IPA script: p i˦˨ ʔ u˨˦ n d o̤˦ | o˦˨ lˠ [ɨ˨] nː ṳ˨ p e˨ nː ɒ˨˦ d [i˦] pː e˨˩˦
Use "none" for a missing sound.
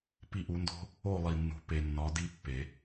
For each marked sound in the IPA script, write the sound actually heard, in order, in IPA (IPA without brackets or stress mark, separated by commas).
i˨, i˦